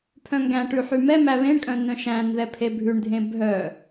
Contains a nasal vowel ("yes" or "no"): yes